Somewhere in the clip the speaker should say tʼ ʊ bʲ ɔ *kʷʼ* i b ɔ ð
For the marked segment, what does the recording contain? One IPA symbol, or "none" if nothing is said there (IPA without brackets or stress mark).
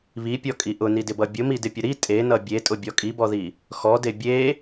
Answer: kʼ